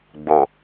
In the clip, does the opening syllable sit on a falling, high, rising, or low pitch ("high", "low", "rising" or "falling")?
low